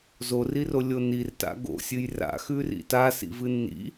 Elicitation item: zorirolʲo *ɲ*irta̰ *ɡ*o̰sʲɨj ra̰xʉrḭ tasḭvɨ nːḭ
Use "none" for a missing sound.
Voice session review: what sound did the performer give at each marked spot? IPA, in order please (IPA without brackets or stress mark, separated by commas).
n, ɡ